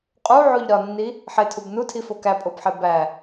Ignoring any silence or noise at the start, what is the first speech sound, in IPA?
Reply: qʼ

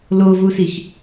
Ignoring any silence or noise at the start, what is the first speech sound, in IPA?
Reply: l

